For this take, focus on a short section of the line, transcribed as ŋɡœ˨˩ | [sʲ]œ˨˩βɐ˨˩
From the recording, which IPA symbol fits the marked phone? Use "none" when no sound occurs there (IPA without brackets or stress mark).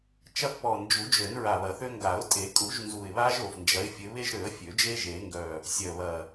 sʲ